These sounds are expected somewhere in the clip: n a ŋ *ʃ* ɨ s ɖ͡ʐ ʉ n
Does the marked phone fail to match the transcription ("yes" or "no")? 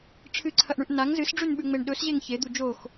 yes